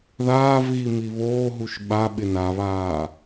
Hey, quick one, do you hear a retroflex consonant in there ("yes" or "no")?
no